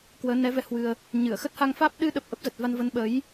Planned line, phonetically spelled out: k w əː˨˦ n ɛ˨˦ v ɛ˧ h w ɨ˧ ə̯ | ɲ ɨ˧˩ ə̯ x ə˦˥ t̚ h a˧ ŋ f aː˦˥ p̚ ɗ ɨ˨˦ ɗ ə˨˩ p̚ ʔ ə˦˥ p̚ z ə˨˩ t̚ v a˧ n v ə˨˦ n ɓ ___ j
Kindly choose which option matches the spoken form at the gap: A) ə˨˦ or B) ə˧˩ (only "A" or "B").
A